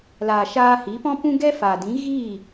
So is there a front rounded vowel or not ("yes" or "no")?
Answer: no